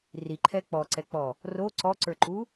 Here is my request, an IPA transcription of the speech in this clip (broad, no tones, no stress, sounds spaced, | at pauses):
r i ǃʰ ɛ k͡p ɔ ǀ ɛ k͡p ɔ | r o ǀ ɔ ǀ ə˞ ǃ u